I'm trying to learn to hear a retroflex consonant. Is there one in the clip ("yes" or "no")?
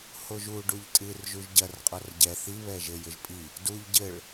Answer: yes